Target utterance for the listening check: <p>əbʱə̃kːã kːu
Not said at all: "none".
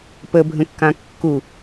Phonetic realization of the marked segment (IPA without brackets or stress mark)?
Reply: p